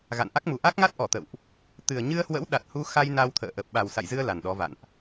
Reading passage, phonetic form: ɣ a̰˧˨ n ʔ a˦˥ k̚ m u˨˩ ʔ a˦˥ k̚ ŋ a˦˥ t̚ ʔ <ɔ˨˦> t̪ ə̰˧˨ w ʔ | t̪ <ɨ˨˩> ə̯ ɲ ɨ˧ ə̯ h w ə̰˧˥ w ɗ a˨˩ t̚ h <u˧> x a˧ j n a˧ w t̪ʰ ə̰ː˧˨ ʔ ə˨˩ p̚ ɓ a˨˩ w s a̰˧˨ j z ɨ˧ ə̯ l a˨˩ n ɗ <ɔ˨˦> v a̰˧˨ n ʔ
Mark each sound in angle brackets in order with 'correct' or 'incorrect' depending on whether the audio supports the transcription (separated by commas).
incorrect, correct, correct, correct